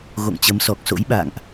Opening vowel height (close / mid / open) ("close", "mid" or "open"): mid